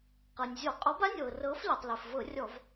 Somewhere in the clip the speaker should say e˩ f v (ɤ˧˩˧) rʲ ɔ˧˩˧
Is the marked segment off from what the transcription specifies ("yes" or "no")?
no